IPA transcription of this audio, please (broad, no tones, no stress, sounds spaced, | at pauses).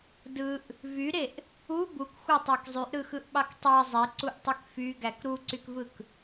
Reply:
d ɯ ʔ | v y ɾ e ʔ | u b u k xʷ ɑ tˤ æ k zˤ y ʔ ɾ ɯ x ɯ ʔ ɓ ɑ k tˤ æ zˤ e ǀ u ʔ tˤ y k f y ɡ æ k ɾ u ǀ y k v ɯ k